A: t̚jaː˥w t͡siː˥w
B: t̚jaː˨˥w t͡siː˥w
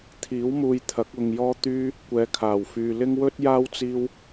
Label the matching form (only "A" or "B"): A